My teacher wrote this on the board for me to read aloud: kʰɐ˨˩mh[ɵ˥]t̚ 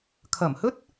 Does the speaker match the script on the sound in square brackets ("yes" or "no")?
yes